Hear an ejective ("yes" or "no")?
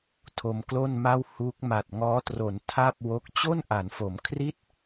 no